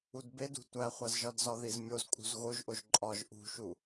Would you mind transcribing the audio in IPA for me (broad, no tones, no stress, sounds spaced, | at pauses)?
u d b e d ṳ tʷ æ χʷ æ z ʒ ɒ d z ɒ ð i z mʲ o z kʼ ṳ z ɣ o ʒ ʔ o ʒ ǃʼ ɒ ʒ ʔ ṳ ʃ u